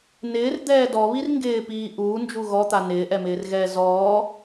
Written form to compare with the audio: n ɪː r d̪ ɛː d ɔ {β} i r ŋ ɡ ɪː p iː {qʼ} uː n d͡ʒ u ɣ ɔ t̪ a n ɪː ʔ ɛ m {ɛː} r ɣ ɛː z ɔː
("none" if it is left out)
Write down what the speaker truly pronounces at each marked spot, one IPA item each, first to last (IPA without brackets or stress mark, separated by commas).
β, ʔ, ɪː